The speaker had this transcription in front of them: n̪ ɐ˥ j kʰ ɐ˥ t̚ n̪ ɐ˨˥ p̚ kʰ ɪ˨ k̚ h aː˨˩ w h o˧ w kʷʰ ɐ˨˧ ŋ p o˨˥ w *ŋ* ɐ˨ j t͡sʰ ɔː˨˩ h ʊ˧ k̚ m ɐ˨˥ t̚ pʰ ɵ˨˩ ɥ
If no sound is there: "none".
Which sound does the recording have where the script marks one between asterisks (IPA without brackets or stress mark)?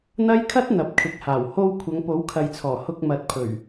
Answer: kʰ